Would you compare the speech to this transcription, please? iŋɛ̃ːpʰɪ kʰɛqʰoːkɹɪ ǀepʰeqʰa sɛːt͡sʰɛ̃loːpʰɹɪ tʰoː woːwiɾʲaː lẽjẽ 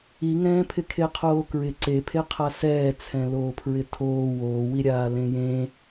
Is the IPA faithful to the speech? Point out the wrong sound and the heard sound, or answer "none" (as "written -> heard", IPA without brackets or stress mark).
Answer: ɛ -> e